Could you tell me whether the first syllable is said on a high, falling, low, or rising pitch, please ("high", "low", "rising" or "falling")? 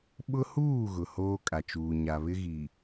high